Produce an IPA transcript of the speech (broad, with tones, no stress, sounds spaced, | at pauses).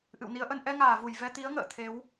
ʔ ɨ̰˧˨ w n i˨˦ ə̯ ʔ ə˧ n ʔ ɛ˧ ŋ aː˧˩ v u˧˩ j v ɛ˧ t̪ i˨˦ ə̯ ŋ ə̰ː˧˨ t̪ʰ e˨˦ w